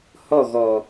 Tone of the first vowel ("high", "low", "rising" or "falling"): falling